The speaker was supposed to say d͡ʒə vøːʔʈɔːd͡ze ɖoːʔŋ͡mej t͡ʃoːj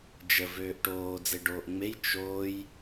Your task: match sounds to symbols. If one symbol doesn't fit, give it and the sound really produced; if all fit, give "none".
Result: ɔː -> oː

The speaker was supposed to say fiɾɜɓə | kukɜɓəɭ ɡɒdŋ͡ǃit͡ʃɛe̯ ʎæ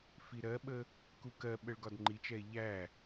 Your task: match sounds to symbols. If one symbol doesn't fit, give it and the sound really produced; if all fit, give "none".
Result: none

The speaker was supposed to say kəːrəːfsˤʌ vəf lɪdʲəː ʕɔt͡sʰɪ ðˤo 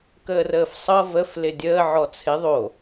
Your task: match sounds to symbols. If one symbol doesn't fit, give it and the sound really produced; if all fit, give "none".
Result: none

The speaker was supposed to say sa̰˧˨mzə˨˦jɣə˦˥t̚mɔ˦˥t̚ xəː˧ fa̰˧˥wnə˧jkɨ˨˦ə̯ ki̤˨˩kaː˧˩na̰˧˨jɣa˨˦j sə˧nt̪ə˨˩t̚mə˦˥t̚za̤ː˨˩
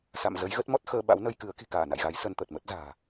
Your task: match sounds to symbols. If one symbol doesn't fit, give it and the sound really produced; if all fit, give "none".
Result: f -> ɓ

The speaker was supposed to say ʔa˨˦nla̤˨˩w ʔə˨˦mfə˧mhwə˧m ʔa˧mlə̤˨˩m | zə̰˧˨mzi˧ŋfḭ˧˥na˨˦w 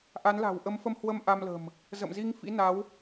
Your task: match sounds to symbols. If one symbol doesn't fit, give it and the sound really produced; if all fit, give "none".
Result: none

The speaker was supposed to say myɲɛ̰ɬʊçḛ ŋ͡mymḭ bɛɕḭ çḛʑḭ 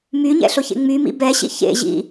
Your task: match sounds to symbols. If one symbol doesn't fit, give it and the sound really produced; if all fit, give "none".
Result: none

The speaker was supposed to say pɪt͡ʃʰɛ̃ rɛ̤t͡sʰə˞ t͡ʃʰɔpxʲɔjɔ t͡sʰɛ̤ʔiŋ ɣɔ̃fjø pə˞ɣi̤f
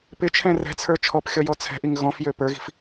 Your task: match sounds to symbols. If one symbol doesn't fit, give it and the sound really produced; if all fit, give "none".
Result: none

